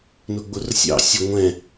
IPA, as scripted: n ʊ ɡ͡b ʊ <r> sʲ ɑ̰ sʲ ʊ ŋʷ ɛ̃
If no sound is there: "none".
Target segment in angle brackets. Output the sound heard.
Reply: r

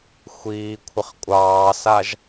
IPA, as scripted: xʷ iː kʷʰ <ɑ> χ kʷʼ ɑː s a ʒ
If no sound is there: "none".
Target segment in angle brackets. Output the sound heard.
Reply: ə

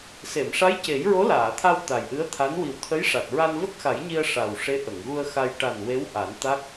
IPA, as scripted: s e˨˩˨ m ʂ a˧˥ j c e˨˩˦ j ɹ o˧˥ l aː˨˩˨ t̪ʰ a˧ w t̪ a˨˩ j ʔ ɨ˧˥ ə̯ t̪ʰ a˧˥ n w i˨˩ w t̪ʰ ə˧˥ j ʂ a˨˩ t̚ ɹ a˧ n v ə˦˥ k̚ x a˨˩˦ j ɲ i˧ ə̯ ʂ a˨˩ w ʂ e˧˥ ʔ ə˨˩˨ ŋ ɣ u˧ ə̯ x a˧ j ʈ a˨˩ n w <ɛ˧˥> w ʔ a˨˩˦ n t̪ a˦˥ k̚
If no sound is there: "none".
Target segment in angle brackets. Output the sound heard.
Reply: e˧˥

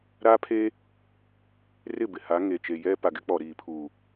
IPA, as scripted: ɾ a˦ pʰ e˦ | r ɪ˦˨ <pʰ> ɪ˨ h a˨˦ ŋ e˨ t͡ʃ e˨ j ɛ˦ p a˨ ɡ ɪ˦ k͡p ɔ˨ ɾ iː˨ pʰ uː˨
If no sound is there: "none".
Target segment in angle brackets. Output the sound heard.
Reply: b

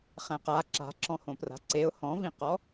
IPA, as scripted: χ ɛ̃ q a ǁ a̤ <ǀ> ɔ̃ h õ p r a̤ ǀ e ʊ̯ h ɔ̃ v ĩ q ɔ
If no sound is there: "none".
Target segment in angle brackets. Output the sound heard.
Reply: ǁ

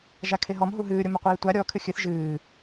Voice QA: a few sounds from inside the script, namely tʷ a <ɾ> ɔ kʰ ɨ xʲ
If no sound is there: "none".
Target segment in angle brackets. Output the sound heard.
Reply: ɾʲ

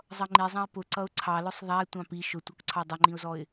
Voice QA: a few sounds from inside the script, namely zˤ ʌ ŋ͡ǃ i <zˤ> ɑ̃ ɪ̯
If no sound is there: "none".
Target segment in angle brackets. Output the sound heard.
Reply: zˤ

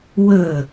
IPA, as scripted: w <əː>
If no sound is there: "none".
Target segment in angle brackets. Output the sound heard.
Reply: əː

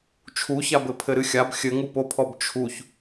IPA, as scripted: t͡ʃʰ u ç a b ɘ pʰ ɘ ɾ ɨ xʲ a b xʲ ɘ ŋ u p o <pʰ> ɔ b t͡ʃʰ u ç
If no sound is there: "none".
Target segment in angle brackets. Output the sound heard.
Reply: pʰ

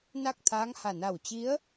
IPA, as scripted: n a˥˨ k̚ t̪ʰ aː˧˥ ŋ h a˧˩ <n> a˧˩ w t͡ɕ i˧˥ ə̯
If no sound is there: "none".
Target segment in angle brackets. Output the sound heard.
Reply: n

